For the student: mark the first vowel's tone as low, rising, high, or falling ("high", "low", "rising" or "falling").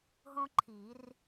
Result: high